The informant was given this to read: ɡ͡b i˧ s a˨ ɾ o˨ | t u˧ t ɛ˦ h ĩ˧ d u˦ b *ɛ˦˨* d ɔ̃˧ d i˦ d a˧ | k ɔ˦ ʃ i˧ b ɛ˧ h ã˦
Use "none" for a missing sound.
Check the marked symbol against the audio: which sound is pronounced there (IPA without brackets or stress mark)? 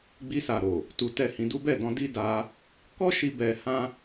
ɛ˦˨